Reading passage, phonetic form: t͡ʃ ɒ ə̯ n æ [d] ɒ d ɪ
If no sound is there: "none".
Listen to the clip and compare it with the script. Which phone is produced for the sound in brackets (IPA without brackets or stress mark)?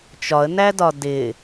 d